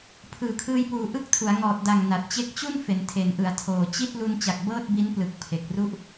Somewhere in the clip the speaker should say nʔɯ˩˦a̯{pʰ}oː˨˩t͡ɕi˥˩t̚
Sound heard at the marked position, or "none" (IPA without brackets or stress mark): tʰ